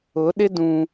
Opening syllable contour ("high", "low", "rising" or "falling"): rising